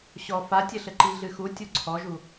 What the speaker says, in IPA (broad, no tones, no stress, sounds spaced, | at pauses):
ɕ ɔ f a tʲ ɘ ɬ ɘ ǃ i ɮ ɨ x u tʲ u ǀʰ ɔ ʒ u